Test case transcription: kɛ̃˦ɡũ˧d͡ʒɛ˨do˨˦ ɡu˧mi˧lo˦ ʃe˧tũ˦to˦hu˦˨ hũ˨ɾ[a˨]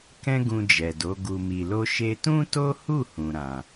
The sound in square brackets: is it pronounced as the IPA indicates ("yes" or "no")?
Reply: no